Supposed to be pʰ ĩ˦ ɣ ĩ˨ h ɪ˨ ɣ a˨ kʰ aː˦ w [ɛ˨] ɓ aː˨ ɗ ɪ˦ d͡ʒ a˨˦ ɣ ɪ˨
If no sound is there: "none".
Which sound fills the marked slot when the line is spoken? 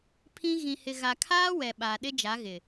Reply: ɛ˨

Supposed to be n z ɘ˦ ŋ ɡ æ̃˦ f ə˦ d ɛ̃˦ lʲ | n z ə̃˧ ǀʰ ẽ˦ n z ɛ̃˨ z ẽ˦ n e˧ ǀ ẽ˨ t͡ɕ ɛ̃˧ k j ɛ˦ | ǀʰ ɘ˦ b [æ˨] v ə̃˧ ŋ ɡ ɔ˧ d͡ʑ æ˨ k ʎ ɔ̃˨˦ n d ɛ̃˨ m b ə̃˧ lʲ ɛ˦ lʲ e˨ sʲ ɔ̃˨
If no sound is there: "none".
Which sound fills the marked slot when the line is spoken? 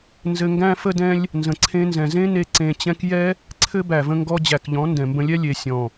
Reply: æ˨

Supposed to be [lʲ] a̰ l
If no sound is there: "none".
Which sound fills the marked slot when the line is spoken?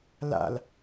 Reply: l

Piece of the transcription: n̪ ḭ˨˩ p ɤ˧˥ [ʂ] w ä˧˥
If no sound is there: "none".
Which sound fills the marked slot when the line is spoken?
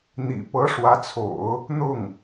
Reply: ʂ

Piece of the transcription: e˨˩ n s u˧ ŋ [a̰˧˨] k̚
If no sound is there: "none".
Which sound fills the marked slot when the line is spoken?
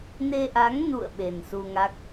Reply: a˦˥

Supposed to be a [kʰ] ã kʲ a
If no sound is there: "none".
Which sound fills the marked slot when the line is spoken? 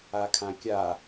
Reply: kʰ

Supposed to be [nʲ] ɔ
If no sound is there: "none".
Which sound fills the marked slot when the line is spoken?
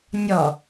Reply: nʲ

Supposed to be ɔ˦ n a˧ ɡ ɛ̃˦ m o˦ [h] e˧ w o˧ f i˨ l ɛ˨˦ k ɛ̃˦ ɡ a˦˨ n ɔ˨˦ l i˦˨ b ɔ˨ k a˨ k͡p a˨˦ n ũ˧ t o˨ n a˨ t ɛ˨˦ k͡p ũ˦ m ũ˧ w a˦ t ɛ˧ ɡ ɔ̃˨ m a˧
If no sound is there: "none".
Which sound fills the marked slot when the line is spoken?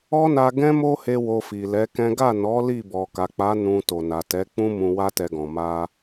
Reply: h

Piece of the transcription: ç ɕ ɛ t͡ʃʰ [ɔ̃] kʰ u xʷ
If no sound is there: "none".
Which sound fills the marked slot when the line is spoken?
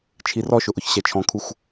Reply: ɔ̃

